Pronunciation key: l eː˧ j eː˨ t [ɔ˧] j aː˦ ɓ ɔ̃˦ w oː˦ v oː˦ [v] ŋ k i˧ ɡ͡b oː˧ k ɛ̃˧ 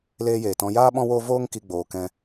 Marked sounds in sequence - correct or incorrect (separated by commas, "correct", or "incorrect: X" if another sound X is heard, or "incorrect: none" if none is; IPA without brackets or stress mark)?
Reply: incorrect: ɔ̃˧, incorrect: none